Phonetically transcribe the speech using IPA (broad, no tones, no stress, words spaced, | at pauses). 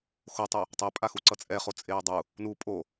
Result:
xotˤɛ | tˤɛpʼaxu ǀʌt͡sʼɛ χot͡sʼeːdˤu | nu pʼo